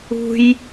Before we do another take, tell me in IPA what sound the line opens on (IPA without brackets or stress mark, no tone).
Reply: ṳ